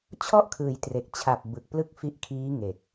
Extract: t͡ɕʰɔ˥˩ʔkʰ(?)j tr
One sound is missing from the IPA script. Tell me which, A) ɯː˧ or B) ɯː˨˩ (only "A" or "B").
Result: B